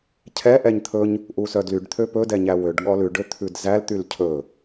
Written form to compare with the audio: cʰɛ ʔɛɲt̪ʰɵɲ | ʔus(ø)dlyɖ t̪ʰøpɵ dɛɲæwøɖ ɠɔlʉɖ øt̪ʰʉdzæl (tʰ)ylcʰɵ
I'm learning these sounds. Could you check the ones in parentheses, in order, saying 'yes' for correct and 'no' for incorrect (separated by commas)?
no, no